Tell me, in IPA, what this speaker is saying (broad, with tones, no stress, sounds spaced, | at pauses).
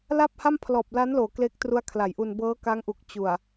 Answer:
l a˥˩ p̚ h a˥˩ m pʰ l ɔː˨˩ p̚ l a˦˥ n l oː˩˦ k l e˦˥ k̚ t r u˦˥ a̯ kʰ l a˩˦ j ʔ u˧ n b ɤː˦˥ k a˦˥ ŋ ʔ u˨˩ k̚ t͡ɕ u˨˩ a̯